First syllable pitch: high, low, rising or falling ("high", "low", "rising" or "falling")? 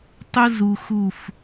high